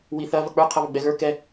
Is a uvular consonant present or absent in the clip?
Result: present